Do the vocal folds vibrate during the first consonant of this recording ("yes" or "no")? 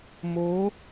yes